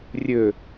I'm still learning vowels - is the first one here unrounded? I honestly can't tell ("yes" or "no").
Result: no